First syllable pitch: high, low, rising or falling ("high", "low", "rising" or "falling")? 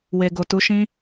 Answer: low